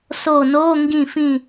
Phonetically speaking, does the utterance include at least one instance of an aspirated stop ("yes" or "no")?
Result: no